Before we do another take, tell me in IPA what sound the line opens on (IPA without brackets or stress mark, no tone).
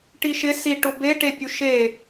ʈ